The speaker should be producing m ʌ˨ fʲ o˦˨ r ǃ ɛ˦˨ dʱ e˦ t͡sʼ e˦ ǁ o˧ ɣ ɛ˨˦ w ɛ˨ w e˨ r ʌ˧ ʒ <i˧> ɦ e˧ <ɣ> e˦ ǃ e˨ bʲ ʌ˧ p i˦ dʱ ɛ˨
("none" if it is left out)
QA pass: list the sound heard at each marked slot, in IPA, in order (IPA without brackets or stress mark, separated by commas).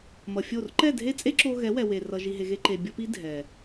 i˧, ɣ